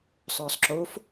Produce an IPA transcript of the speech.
sˤ œː sˤ ǁ o f

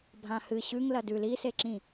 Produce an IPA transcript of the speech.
bʱ ã h ɨ ɕ ʉ ŋ l ɐ d ʉ l i s e ǁ ĩ

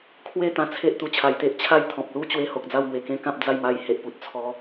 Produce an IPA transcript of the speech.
kʰ w e˥˧ t̪ ã˧ t͡sʰ e˦ ʔ t̪ u˨˩ t͡ɕʰ a˨˩ j t̪ e˦ ʔ t͡ɕʰ a˦ j t̪ʰ ɔ̃˨ p̚ l u˥˧ t͡ɕ w e˧ h o˨ k̚ d͡z a˥˧ w ŋ w e˨˩ k ẽ˦ k ã˦ p̚ d͡z a˥˧ j m a˧ j h e˨ ʔ p u˨ t̚ t͡sʰ ɔ˧

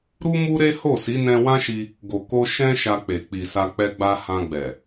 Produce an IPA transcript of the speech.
ɾ u˦ m u˦ ɾ e˦ h o˦˨ s i˨˦ n ɛ̃˧ w ã˦ ʃ i˧ | ɡ o˨ k o˧ ʃ ɛ̃˧ ʃ a˧ k͡p e˨ k͡p i˨ s a˧ k͡p ɛ˧ ɡ͡b a˧ h ã˧ ɡ͡b ɛ˨

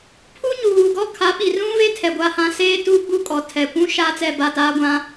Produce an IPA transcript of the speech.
pʰ u˦ ɲ uː˨ ɡ ɔ˦ kʰ a˨˦ ɓ i˨ r ũ˦ v e˦ tʰ ɛ˨ ɡʷ a˦˨ h ã˦ s eː˦ t uː˦ ɡ͡b u˦ kʼ ɔ˨ tʰ ɛ˨ kʷ ũ˦ ʃ aː˦ t͡s ɛ˦˨ b a˦˨ t aː˦ ɡʷ ã˦

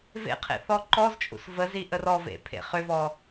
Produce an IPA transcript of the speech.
v ḛ qʰ ḛ θ ɔ ǃ ɔ z t͡ʃʼ ṵ s v ə z i ʔ ə r ɔ v ḛ pʰ ḛ χ ʏ v ɔ

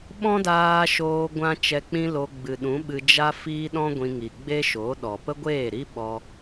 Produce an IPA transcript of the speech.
ɓ ɔ̃˦ d aː˧ ʃ oː˧ ɡʷ ã˦ t͡ʃ ɛ˧ k͡p ĩ˦ l o˧ ɡ͡b ɨ˨ ɗ ũ˨˦ ɓ ɨ˧ d͡ʒ a˦ f iː˦ ɗ ɔ̃˦ ɡʷ ĩ˧ ŋ i˨ ɡ͡b e˦ ʃ o˨˦ ɗ ɔ˨ p ə˦ ɡʷ eː˦˨ ɾ i˦ ɓ ɔ˦

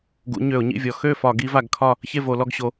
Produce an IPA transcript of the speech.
ɡ ṵ˨˦ ɲ ø˧˩˧ ʊ̯ ɲ ḭ˥˨ vʲ ɔ˨˦ x ø˥˨ f ɒ˧˩˧ ɡ i˨˦ v a˧˩˧ ɡ kʰ ɒ˥˨ | ç e˥˨ v o˧˩˧ l ɔ˥˨ ɡ ɕ o˨˦

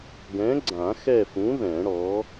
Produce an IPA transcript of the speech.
ɡ ɛ̃˨˥ ɡ͡ǀ ã˨˩˦ x ɛ˦˨ f ũ˨˥ ð ɛ̃˨˩˦ ɽ ɔ˨˥

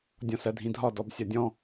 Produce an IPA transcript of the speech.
dʲ ɔ̃ s ɜ dʱ ĩ dʱ ɒ d ɔ b sʲ ɒ dʲ ɔ̃

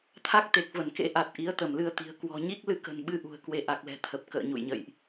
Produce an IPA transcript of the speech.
t̪ʰ a˦˥ k̚ t̪ e˨˩ k̚ v ə˧˩ n k ḛ˧˥ ʔ a˨˩ t̚ ʔ i˨˦ ə̯ t̪ ə˧˩ m l ɨ˧ ə̯ t̪ i̤˨˩ ə̯ k w ɔ̤˨˩ ɲ i˦˥ k̚ l ɨ˧ k ə̤˨˩ n ɓ ɨ˧ ʔ ṳ˨˩ ə̯ k w e˧ ʔ a˨˩ k̚ l ɛ̤˨˩ t̪ʰ ə˨˩ p̚ k ə̰ː˧˨ ɲ ṵ˧˨ j ɲ ə̰˧˨ j ʔ

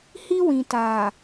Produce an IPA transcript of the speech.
h i˦ w ĩ˨ t aː˨

